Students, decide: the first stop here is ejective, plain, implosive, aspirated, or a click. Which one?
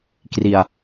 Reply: plain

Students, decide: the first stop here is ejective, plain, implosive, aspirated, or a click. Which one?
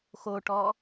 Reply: plain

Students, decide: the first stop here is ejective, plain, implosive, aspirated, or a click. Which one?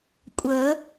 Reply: ejective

